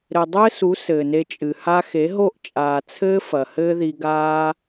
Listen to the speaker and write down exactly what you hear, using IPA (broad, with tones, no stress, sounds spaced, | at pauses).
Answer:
ɾ ɘ˨ dˤ ɘː˦ s u˨˦ s ɘː˨ n e˧ t͡ʃʼ ɨ˨ h a˦ x e˨˦ ɦ o˦˨ ʔ t͡ʃʼ aː˨ t͡sʰ ɘː˦ f ɐ˨ h ɘː˦ ð i˧ ɡ aː˦